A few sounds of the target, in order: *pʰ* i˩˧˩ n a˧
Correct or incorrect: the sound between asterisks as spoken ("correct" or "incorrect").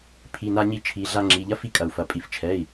correct